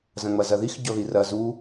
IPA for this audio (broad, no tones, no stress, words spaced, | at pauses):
zɐ̃ŋ͡mɐzɐðix ɟɔðirɐ zu